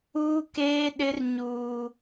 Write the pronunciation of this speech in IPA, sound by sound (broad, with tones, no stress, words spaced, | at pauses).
uː˦keː˦ɗɪ˦r ɲuː˦